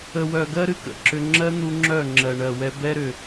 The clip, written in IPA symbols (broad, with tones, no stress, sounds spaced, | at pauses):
ə˨ w œ˨ ɡ ɜ˦ ɾ ɨ˨ k ə̰˨ ǁ ʏ˧ ŋ͡ǁ ɜ˦ n̪ u˧ ŋ͡ǁ œ˦˨ ŋ͡ǁ ɜ˨ ɳ ɜ˨ w ɛ˧ b ɛ˦ ɾ ʏ˨